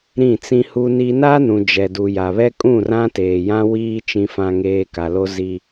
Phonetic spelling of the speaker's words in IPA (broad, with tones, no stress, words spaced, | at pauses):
ɾĩ˦˨t͡sĩ˦hu˦ni˦ na˦nũ˨ d͡ʒɛ˨du˨ja˨βɛ˦ kʼũ˦˨rã˦teː˨jã˦ wiː˦ t͡ʃĩ˨fã˨ŋeː˨ ka˨lo˦zi˦